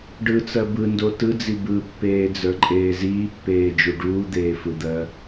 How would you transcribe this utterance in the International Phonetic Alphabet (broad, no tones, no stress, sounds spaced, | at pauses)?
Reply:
ɖ ɯ t͡s ɜ b ɯ n d o t ɯ d͡z i b ɯ pː eː d͡z ə˞ ǃʼ eː z iː pː eː d͡ʒ u ɖ uː d̪ eː f ɯ d̪ ɜ